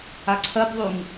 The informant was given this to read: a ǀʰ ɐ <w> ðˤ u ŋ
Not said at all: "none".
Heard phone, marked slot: b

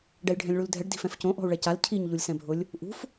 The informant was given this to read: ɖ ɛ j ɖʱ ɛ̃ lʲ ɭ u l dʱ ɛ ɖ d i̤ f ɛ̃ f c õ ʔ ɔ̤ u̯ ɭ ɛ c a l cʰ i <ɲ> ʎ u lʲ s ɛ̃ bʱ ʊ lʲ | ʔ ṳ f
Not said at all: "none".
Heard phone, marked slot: ɲ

